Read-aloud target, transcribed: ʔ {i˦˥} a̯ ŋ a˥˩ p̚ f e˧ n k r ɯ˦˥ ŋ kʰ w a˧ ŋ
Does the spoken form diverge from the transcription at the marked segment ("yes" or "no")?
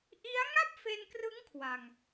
no